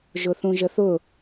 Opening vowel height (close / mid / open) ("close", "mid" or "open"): close